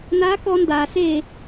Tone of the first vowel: rising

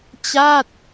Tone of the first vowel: falling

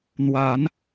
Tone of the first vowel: rising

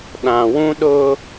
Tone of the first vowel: low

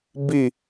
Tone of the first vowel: falling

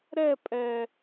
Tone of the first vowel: falling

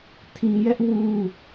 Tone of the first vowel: low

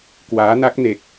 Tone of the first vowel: rising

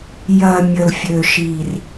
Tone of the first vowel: low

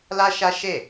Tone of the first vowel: high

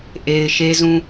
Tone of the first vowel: low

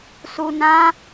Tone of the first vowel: low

